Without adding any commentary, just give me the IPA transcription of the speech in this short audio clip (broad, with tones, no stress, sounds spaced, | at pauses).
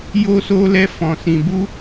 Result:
j o˧ s o˧ l ɛ˧ f ɔ̃˧ s ĩ˧ b u˦